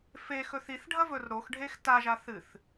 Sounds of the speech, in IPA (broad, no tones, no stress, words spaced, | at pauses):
fexɵθ iθɖʱɐvɵr ɾoxɖʱex taʒa θɨθ